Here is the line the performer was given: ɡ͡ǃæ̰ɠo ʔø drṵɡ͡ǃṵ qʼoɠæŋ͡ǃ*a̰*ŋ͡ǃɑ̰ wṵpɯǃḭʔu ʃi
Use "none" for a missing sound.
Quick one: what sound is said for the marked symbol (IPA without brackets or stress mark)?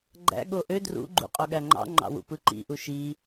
ɑ̰